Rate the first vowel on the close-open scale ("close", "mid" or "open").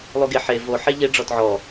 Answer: close